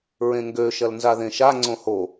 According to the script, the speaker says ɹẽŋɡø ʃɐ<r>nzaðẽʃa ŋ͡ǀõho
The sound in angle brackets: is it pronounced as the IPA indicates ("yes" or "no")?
no